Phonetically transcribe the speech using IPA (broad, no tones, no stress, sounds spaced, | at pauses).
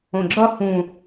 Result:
õ ɡ͡ǁ ʌ h ũ